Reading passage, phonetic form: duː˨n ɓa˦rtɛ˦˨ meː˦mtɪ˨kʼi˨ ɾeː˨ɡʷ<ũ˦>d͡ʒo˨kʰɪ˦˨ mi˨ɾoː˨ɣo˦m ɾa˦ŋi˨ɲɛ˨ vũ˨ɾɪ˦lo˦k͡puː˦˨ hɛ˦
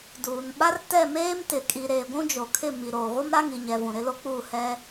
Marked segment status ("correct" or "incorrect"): correct